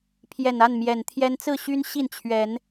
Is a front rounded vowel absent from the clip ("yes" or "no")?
no